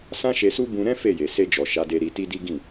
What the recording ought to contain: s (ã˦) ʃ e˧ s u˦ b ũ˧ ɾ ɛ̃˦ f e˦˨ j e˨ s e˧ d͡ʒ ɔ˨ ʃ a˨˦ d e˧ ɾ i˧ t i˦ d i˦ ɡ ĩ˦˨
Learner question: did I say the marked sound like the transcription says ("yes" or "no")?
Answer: yes